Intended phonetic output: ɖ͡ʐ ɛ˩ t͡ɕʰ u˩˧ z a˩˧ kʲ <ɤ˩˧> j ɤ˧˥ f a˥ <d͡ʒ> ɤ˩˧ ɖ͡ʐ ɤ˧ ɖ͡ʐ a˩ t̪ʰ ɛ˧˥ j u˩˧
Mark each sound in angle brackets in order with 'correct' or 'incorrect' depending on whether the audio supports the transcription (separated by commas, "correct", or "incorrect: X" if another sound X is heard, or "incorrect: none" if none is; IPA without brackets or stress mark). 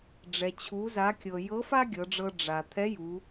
incorrect: ɤ˩, incorrect: ɡʲ